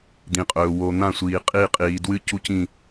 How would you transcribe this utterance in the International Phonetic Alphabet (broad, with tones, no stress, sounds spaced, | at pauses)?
d̪ ĩ˨ qʼ ɵː˨ w o˨ n̪ ã˦˨ sʷ iː˨ qʼ i˦˨ qʼ iː˨ d w ɨ˦ c u˦ c ĩ˦˨